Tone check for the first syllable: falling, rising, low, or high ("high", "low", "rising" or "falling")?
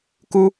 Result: high